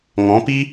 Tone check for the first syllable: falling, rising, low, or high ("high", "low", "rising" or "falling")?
rising